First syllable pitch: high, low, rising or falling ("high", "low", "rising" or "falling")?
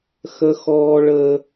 high